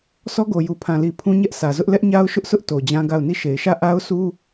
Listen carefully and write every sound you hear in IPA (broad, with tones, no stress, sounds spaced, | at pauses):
sʰ ɔ˦ ɡ o˨ j u˨ pʰ ã˨ l i˨ pʰ ũ˦ ɲ ɛ˦ ʔ s ä˨ z ʊ˦ ʔ l ɛ˦ ʔ ɲ a˦ ʊ̯ ʃ ʊ˦ ʔ sʰ ʊ˦ ʔ t o˨ d͡ʑ ã˦ ɡ a˦˨ ʊ̯ n i˦˨ ʃ e˨ ɪ̯ ʃ ä˦˨ ʔ a˦ ʊ̯ s u˦